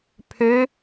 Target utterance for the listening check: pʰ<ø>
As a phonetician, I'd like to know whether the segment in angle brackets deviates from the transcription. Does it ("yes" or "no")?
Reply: no